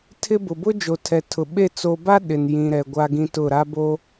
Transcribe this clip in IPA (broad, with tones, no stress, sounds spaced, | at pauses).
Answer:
tʰ ɪ˦ b ʊ˨ b ʊ˦ d͡ʒ o˨ tʰ ɛ˨ tʰ ʊ˨ ɓ e˦˨ t͡s o˨ b a˦ ɗ ɪ˨ n j ĩ˨ ɾ ɛ˨ ɡʷ a˦ ɡ ĩ˦ t ʊ˦˨ ɾ a˦ b o˦